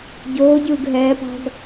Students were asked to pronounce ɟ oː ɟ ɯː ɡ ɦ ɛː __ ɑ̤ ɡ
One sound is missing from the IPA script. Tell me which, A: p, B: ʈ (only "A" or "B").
A